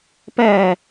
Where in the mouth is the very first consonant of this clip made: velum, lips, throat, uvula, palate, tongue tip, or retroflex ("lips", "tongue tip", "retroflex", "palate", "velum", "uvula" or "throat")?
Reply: lips